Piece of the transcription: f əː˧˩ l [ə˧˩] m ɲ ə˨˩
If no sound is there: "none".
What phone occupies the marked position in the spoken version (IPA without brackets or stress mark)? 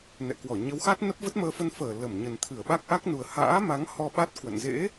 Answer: ə˧˩